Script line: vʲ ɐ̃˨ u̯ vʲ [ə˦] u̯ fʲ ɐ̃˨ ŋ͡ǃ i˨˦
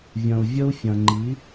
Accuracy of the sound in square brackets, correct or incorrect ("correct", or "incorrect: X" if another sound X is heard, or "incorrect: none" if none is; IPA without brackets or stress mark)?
correct